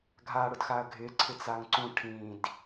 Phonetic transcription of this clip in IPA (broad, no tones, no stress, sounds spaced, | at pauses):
ɡʱ a ɽ ʊ d x a ɐ̯ ɡʱ ɪ ǀʰ ɪ t͡s a ŋ ǀ ũ ʈʰ ĩ d